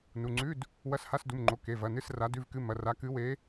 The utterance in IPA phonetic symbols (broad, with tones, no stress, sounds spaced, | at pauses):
n u˩˧˩ ŋ͡ǀ ʉ˧˥˧ d | w ɐ˧˥˧ s h a˧˥˧ s d u˩˧˩ m ŋ͡ǃ o˩˧˩ k e˩˧˩ v ɐ˩˧˩ n ɨ˧˥˧ s r a˨˦ d ʉ˧˥˧ v k ɨ˧˥˧ m ɐ˩˧˩ r a˨˦ k ɨ˨˦ w e˨˦